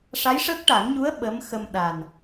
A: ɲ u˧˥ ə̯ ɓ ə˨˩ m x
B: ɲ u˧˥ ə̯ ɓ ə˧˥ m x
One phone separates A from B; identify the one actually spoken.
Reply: B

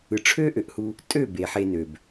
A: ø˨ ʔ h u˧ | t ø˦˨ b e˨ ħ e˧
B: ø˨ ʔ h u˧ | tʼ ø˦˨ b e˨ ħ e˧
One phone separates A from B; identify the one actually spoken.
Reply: B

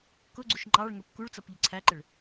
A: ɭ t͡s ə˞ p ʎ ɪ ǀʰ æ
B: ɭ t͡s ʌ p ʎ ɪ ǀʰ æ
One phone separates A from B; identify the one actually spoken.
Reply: B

